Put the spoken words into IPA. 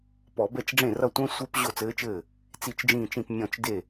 p ɔ˧˩˧ b ɛ˥˩ t͡ʃ ɖ͡ʐ ẽ˥˩ r ʌ˥˩ tʷ ɛ̃˦˥ sʷ e˦˥ p ʑ o˥˩ t͡s ɘː˦˥ t͡ʃ ɘː˥˩ | t͡s i˥˩ t͡ʃ d͡ʒ ĩː˥˩ t͡ʃ ĩ˥˩ p mʲ ɔ̃˥˩ t͡ʃ d e˥˩

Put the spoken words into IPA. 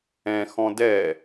ɛ̃ x ɔ̃ d ɛ

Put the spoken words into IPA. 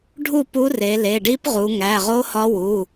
ɖʱ u˥˨ p u˧˥ r e˩˧ l e˩˧˩ ɖ i˧˥ p ʁ u˩˧ ŋ æ˩˧˩ ʁ o˧˥ h ɒ˧˥ w u˩˧˩

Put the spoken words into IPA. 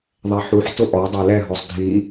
ðˤ ɛ ħ u ħ t ʊ ʔ ɔ dˤ e l ɛ ɦ ɔ sˤ dʱ i

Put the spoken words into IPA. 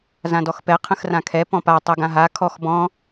z ã d ɔ x p ɛ qʰ ə̃ x r ã kʰ ɛ p ɔ̃ p a tˤ ɤ ɡ ã ɦ a kʰ ɔ x b ɔ̃

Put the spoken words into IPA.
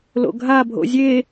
l o̰ ɡʱ a bʱ o̰ zʲ e

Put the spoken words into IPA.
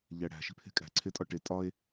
ʎ æ ɽ æ̤ ʃ i̤ pʰ e̤ kʼ æ̤ ǀʰ e tʼ ɒ ʈ e tʼ ɒ e̯

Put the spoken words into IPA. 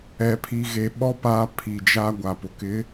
ɛ˨ pʰ i˨ ɣ e˨ ɓ ɔ˦ p a˦ pʰ i˨ d͡ʒ a˦ ɡʷ a˨ p ʊ˨ k ɪ˨˦

